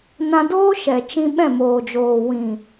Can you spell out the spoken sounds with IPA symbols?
n ã˧ d oː˦ ʃ ɛ˨ t͡ʃ ĩ˦ ɓ ɛ̃˦˨ m oː˨ d͡ʒ oː˨ w ĩ˨

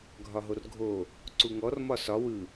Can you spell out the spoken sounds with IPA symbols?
ɡʱ ɒ ɦ o r ɡʱ o | ǀ u ŋ ɔ r m ɒ s ɒ w ɯ

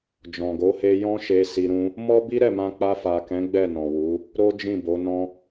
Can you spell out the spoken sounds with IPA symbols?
d͡ʒ ɔ̃˨ ɡ o˨˦ h e˧ j ɔ̃˦ ʃ e˧ s i˧ ɾ ũ˦ | m ɔ˦ b i˦ ɾ ɛ˦˨ m ã˧ k͡p a˧ f a˨ k ɛ̃˨˦ ɡ͡b ɛ˦˨ n ɔ̃˨ w u˨˦ | ɾ o˦ d͡ʒ ĩ˦˨ b o˨˦ n ɔ̃˦

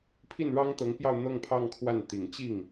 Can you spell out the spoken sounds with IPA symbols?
pʰ i˥˩ n ɻ ɑ˥ ŋ t̪ ɤ˧˥ ŋ p j ɑ˥˧ ʊ̯ n̪ ɤ˥˧ ŋ pʰ ɑ˥˧ ŋ kʰ w a˥˩ n t̪ i˨˩ ŋ t͡ɕ i˥˩ ŋ

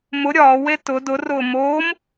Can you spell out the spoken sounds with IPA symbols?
m ʊ ɾʲ ɒː w e t ʊ d ʊ r ʊː m oː m

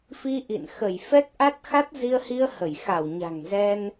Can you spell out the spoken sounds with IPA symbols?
f i˧ ʔ ḭ˧˨ n x ə˧˩ j f ɛ˦˥ k̚ ʔ a˦˥ t̚ x a˦˥ t̚ z i˧ ə̯ h i˧ ə̯ h ə˧˩ j x a˧˩ w ɲ a̤˨˩ ŋ z ɛ˧ n

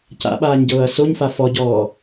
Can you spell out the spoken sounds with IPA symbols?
c a̰ ɓ aː ɲ ɟ ɤː ɐ̯ s o ɲ f a f ɔ ɟ ɔː

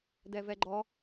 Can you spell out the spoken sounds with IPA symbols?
d ɛ v ɛ ɡ͡ǃ ɔ

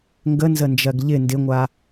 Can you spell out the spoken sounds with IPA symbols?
ŋ ɡ ə n z ə n d͡ʒ ɜ ɡ ʎ ɪ n d ɪ ŋʷ a

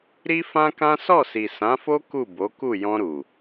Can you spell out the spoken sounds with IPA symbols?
ɾ i˦ f ã˦ k ã˦ s ɔ˦˨ s i˨ s ã˨˦ f o˦ k u˦˨ b o˨˦ k u˦˨ j ɔ̃˧ ɾ u˨

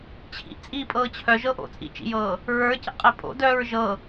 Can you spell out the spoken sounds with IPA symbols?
t͡ɕʰ ḭ ʔ t͡sʼ iː pʼ ɤː t͡ɕʰ œ ʒ ɤ ʔ o̰ t͡sʼ ḭ t͡ʃ ḭ j ɤː | ɹ ə˞ c ə̰ qʼ e pʼ o̰ d œː ɹ ʒ ɤ

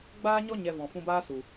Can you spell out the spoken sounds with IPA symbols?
ɡ͡b aː˦ ɲ ɔ˦ ɲ ɛ˧ v ɔ̃˨ f ũ˧ b aː˦ s u˨

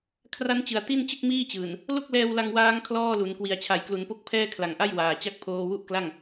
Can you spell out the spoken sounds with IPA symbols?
kʰ r a˦˥ n t͡ɕ ɯ˨˩ a̯ t i˥˩ n t͡ɕ ɯ˥˩ k̚ m iː˥˩ t͡ɕ ɯː˨˩ n | l o˥˩ k̚ l ɛː˧ w l a˧ ŋ w aː˦˥ ŋ kʰ l ɔː˥˩ l u˩˦ n k w i˨˩ a̯ t͡ɕʰ a˩˦ j k l u˩˦ n p o˦˥ k̚ pʰ ɛː˥˩ kʰ l a˨˩ ŋ ʔ a˥˩ j w aː˨˩ t͡ɕ a˥˩ k̚ pʰ oː˧ w u˥˩ ʔ k l a˥˩ ŋ

